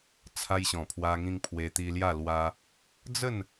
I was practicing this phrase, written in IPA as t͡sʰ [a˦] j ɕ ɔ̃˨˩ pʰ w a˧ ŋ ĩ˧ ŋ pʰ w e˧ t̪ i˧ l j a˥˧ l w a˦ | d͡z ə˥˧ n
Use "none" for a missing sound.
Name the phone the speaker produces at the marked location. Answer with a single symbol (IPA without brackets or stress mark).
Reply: a˧